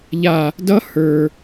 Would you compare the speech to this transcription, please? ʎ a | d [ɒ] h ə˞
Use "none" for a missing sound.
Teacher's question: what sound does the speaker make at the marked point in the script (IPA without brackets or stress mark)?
ʌ